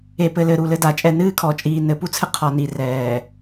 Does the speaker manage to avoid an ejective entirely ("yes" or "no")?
no